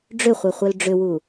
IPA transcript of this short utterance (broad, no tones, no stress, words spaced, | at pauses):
ɖ͡ʐʏχʷœ χʷœlɖ͡ʐʏwu